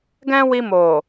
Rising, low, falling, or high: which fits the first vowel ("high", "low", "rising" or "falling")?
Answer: high